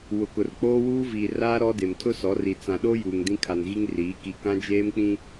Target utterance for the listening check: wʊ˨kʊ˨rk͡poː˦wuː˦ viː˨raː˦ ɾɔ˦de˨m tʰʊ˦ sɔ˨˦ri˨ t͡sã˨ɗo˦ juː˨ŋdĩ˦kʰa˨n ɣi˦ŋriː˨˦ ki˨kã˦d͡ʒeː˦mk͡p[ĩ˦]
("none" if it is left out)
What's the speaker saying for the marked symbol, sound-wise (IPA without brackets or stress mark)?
ĩ˦